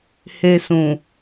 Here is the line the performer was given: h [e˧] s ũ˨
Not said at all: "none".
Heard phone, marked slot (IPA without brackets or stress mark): e˧